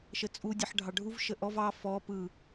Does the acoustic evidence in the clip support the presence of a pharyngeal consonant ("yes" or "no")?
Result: yes